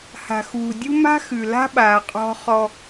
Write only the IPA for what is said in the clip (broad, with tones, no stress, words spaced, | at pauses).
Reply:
ha̤˨xuː˨dʲu˦ ma̤˦xʉ˨ la̤˦ɓaː˨ qʼɔ̤˦χɔ˦